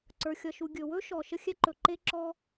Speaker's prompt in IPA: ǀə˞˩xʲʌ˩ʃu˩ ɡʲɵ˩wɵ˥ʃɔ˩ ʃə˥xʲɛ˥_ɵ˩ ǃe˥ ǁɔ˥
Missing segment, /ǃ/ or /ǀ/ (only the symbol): ǃ